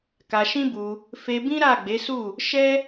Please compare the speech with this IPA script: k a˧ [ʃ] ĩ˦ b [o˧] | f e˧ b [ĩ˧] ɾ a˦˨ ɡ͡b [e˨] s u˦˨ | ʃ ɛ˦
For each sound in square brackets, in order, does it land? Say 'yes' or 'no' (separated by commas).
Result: yes, no, no, no